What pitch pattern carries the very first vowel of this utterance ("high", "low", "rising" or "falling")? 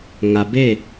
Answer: low